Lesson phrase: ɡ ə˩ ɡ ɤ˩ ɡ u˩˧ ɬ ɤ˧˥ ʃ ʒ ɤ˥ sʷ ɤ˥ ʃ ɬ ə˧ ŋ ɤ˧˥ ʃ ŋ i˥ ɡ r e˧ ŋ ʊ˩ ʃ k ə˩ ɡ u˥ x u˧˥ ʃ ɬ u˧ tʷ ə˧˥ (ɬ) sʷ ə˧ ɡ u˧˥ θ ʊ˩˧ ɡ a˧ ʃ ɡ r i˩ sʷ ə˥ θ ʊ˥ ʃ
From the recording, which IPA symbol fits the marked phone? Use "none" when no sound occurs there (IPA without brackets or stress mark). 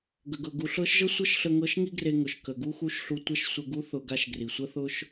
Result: ʃ